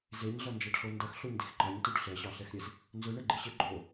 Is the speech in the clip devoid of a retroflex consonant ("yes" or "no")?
no